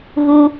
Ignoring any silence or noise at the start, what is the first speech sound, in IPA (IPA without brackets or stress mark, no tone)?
ɣ